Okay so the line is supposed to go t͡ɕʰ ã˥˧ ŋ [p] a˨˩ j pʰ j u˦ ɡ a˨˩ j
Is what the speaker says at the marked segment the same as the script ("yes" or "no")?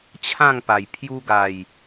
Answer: yes